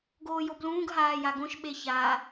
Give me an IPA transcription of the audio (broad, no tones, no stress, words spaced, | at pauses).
ɡoːjoblũːɡ ɦaːjaɡõʃ ɓeça